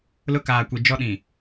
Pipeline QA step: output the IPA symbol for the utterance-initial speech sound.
l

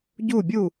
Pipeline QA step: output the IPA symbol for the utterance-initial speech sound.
ɟ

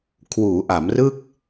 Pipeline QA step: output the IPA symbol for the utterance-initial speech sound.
kʰ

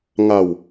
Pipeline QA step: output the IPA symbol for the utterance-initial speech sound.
ŋ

